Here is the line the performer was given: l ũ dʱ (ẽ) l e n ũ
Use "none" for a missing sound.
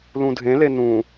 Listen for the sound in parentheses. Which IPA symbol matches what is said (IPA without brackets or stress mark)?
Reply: ẽ